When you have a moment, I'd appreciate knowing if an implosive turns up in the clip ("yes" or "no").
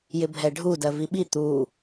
yes